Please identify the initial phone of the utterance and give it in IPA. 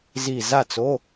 z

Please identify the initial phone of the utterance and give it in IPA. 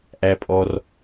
ʔ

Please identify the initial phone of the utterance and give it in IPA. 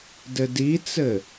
d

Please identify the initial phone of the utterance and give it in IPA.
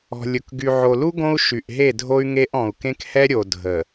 ɔ̤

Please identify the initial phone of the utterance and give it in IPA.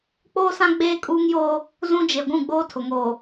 k͡p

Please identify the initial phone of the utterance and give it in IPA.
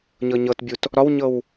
ɲ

